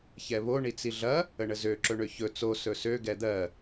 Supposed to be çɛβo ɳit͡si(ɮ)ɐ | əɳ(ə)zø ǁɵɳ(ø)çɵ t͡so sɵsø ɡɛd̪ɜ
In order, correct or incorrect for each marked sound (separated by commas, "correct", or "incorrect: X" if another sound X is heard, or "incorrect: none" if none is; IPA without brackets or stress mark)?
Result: correct, correct, correct